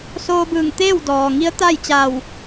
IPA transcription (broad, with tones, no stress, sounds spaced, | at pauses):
s oː˧ b ɯː˧˩ ŋ t̪ eː˥˨ w d ɔː˩ ŋ i˧˥ ə̯ t̪ a˥˨ j t͡ɕ a˧˩ w